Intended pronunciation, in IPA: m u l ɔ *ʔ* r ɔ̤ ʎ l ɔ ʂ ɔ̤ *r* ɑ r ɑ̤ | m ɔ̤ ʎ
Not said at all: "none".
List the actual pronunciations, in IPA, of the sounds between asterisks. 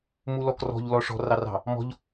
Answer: k, r

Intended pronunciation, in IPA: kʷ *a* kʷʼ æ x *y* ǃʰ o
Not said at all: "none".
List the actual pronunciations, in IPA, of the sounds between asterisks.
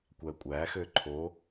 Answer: æ, ø

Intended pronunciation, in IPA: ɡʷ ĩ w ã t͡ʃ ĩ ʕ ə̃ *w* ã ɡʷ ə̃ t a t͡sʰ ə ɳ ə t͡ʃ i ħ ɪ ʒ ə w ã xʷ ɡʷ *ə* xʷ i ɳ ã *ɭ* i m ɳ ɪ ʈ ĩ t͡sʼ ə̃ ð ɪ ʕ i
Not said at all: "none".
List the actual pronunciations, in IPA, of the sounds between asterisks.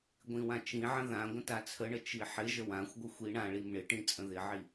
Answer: ð, ə, ɭ

